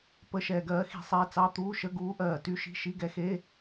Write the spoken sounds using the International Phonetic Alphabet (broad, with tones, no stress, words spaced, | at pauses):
pə˧˥˧ʃɛː˧ɡɜː˧˥ xi̤˧sˤɛː˧t͡sɑ˧˥˧ t̪uː˧˥˧ʃə˧˥˧ ɡuː˧˥ʔɜː˧˩ty˧˥˧ʃi̤˧˥˧ ʃi˧˥˧ɡɛ˧˥xe˧˥˧